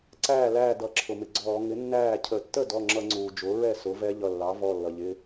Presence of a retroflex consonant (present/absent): absent